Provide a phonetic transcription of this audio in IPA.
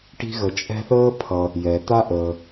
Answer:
ʈ i̤˦ ɣ ə˨ t͡ʃʼ ɛ̤˦ θ əː˥ pʰ ʌ˨ | j ɛ˩ t̪ a˦ ʔ əː˩

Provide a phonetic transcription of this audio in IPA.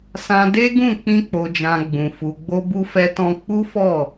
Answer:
s ã˧ d e˦ ɡ ũ˦˨ k͡p ĩ˧ k͡p o˨ d͡ʒ ã˨ ɡ͡b ũ˨ f u˨ ɡ͡b o˧ b u˧ f ɛ˧ t ɔ̃˧ k͡p u˦ f ɔ˦˨

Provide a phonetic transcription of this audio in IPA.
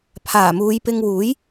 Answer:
pʰ aː˨˩ m uː˨˧ j p ɪ˧ ŋ w uː˨˥ j

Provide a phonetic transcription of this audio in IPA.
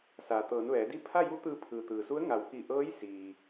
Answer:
s aː˩ t̪ ɤː˩˧ n ʋ ɛː˩˧ d i˥˨ pʰ a˥˨ j u˧˥ t̪ ɯː˧ pʰ ɯː˩ t̪ ɯː˩ s u˧˥ ə̯ ŋ a˩˧ w k i˧˩ ʔ ɤː˧˥ j s iː˩

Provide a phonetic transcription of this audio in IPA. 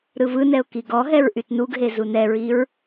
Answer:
ɾ ɯ v ɯ n ɛ ʊ̯ k i ɡ ɔ ɦ ɛ ɹ ʔ y t n u ɡ ɦ e z u n ɛ ɹ i ɹ

